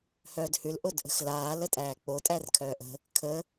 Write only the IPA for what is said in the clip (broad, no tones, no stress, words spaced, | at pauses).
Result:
hœːdhʉl ʔodʔə̤xlaːl ətʼæːk͡po tʼærkʰœːʔə̤ | kʰə